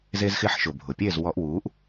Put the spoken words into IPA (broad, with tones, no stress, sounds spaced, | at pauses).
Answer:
z e˧ z x ɪ˧ ħ ʃ ʊ˩ bʱ ʊ˩ pʲ e˥˩ z w ɔ˧ ʔ w uː˩˥ ʔ